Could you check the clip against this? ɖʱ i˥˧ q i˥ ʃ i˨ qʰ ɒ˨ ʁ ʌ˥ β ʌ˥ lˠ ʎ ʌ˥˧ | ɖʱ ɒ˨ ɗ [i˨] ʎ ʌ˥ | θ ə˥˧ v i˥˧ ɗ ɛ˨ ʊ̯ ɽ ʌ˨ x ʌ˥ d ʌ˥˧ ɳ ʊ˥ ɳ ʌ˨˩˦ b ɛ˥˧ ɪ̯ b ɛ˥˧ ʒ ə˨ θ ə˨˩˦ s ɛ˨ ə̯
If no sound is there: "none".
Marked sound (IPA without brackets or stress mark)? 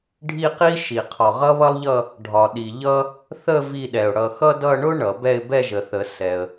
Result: i˨